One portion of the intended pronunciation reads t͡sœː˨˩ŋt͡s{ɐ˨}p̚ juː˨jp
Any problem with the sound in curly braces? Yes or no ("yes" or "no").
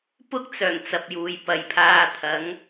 no